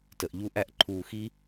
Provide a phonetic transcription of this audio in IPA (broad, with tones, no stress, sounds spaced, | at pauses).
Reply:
t ə˨ ʔ ʎ u˦ ʔ æ˦ ʔ ǃʰ uː˧ x i˦